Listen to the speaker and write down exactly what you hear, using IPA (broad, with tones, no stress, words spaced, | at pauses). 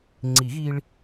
ŋ͡ǀi˨˩˦ɣi˧ɭ